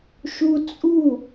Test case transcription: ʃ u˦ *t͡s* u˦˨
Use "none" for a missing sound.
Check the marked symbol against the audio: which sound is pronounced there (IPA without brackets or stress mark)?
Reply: t͡sʼ